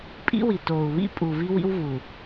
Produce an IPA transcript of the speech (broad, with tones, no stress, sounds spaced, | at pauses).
pʼ ḭ˦ w i˨ t oː˨ u̯ β ḭ˦ pʼ u˨ v i˦ w ḭ˦ w v u˨